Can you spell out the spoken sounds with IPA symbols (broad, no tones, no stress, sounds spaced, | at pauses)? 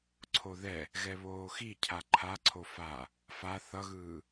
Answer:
ǀʰ o ð ɛ | ɣ ɛ β oː x i cʰ a ǃʰ a ǀʰ o f a | f a θ ʌ ɣ ɯː